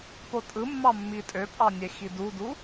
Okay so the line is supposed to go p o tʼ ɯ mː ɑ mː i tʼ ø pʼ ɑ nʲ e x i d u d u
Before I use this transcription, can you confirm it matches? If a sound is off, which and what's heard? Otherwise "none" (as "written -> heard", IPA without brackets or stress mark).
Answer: none